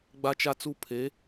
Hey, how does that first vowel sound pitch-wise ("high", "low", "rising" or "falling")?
high